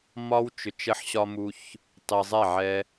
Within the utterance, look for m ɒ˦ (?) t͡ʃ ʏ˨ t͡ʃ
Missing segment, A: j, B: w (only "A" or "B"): B